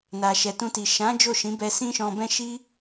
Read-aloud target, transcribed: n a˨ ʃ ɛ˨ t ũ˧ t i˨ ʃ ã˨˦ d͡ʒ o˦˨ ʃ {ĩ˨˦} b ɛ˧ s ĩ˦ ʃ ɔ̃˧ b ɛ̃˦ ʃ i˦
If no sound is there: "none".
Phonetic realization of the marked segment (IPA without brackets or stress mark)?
ĩ˨˦